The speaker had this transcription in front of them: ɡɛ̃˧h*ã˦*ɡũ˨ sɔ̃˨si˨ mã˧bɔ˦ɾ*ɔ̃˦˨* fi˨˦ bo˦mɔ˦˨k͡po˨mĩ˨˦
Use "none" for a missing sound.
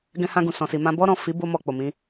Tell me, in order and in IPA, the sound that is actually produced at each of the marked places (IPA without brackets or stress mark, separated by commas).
ã˧, ɔ̃˦˨